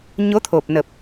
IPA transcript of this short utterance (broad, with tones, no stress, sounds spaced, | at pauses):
ɲ o˨˦ t̪ʰ o˨˩ p̚ n ə˨˩ p̚